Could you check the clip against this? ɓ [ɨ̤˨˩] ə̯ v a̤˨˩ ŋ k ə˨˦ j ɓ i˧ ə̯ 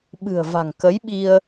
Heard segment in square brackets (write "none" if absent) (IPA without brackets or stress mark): ɨ̤˨˩